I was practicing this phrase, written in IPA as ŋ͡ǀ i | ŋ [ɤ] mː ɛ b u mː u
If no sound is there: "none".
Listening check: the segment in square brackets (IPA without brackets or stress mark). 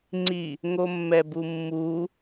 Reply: o